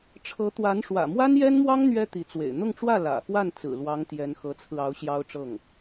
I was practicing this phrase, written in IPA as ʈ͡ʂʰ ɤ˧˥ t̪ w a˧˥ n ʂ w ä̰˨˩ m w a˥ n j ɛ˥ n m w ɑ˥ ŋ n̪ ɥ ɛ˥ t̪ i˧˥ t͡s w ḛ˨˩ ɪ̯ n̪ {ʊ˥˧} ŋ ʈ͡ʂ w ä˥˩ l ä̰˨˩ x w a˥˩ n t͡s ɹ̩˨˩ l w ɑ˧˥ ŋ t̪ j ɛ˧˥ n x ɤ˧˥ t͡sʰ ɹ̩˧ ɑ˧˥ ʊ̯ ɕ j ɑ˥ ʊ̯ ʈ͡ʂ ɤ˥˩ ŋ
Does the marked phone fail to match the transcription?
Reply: no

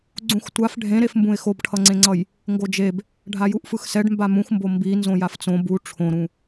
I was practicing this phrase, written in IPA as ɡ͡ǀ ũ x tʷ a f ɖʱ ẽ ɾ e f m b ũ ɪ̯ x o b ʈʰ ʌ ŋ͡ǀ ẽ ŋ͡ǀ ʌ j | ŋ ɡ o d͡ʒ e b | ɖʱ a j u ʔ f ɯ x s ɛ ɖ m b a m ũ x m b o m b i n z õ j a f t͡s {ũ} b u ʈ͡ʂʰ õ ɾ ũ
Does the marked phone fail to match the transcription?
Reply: yes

